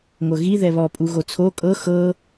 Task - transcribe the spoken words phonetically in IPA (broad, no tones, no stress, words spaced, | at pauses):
ŋʷɤɣi ðɛβɔ pʼuɣot͡sʰo kʼɤ xɤ